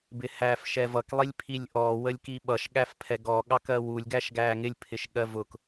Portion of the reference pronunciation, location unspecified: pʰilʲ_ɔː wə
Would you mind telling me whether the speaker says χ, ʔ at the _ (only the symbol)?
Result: ʔ